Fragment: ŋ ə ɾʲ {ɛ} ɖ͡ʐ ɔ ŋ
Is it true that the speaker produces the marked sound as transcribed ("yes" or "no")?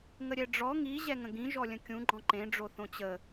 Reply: yes